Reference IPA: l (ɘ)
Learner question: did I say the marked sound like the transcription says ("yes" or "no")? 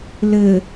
yes